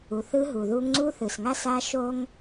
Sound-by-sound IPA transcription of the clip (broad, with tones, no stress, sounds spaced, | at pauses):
u˨ θ ɯ˦ ɦ u˨ ð u˦ ŋ ŋ͡ǀ u˦ θ ɯ˨ s ŋ a˦ s a˦ ʃ o˦ ŋ